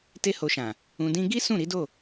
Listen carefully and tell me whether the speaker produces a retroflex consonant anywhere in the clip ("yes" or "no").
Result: no